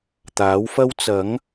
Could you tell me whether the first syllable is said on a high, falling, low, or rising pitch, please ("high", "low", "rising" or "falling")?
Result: rising